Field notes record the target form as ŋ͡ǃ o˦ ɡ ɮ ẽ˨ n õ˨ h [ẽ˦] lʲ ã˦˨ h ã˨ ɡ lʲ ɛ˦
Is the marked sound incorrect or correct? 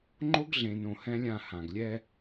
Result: incorrect: ɛ̃˦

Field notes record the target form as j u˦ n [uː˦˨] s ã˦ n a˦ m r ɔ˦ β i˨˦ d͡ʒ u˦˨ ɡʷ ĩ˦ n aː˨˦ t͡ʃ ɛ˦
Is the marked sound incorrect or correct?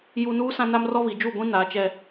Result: incorrect: uː˦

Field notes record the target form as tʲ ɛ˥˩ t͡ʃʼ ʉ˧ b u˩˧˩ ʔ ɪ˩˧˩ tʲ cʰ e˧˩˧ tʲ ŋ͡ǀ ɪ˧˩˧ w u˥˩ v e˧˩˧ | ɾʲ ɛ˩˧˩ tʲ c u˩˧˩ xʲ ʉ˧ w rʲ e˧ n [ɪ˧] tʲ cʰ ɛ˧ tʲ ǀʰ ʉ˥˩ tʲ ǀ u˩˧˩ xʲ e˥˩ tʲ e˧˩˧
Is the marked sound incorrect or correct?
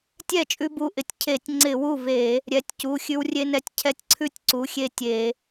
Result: incorrect: ɛ˧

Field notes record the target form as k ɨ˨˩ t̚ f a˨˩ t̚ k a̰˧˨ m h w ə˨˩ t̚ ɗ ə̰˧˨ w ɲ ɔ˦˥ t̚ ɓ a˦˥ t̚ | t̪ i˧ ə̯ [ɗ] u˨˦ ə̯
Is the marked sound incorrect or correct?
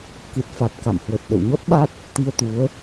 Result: incorrect: t̪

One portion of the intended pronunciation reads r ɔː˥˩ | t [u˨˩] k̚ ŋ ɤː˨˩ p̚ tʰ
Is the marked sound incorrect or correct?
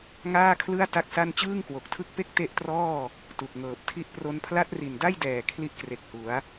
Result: correct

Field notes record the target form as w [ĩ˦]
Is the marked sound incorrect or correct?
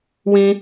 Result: correct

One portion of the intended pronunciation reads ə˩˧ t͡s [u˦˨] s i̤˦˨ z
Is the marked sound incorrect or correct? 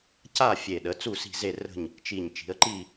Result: correct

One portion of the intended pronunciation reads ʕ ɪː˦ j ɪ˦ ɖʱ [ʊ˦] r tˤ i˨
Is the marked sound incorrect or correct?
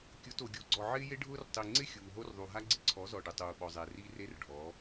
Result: incorrect: ʊː˦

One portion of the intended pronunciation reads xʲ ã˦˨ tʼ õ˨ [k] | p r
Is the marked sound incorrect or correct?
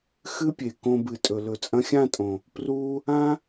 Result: incorrect: none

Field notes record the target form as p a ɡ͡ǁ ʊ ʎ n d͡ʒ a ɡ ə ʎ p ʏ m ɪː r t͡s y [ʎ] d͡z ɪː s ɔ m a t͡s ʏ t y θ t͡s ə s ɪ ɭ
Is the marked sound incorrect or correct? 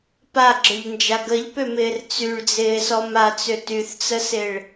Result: incorrect: ɭ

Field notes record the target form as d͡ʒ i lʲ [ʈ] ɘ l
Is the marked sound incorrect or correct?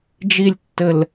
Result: incorrect: tː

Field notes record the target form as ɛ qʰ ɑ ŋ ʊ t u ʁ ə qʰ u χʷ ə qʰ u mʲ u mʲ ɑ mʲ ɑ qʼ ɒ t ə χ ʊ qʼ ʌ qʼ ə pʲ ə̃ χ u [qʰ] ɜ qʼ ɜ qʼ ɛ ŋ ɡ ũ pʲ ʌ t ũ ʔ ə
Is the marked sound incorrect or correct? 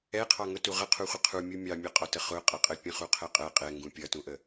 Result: correct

